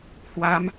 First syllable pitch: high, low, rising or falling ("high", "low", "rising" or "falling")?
rising